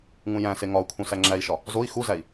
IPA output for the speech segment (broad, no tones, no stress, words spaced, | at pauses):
ŋũjæ̃se ŋɒu̯kʰũ sæŋ͡ǁæi̯ʃɒ | zoi̯ xuzæi̯